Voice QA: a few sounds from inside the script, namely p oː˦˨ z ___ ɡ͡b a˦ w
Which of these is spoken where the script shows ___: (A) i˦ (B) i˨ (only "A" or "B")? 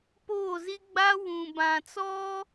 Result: A